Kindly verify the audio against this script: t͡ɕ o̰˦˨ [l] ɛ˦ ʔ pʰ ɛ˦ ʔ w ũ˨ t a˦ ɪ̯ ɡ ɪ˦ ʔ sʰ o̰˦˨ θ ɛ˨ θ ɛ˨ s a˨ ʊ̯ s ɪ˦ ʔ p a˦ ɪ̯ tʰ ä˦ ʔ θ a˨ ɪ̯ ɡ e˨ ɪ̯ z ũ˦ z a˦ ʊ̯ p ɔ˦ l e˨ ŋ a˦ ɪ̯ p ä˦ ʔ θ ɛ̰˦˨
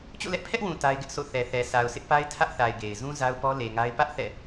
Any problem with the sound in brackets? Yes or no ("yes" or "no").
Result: no